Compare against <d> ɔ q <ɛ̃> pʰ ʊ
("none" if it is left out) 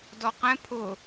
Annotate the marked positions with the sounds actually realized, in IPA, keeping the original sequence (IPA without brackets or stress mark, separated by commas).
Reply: d, ɛ̃